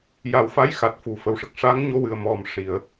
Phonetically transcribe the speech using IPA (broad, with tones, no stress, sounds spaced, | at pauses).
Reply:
j a˨˩˦ w f a˧˥ j x a˨˩ t̚ f u˨˩ f ə˨˩ w ʂ ə˨˩ k̚ ʂ a˧˥ ŋ ɲ o˧ w ɨ˨˩ ə̯ m ɔ˨˩ m ʂ i˨˩˨ ə̯